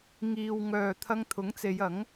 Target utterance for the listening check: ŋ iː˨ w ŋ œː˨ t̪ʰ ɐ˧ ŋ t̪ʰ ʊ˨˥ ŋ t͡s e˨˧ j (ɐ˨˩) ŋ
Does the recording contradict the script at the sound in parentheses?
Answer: yes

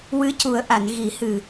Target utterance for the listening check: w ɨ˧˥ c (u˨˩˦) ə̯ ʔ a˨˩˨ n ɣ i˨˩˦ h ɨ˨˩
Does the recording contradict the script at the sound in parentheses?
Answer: no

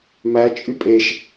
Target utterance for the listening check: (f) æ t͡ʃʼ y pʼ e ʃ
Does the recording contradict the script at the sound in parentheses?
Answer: yes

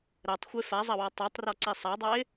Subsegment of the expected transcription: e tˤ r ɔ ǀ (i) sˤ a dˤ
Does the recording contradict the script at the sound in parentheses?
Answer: no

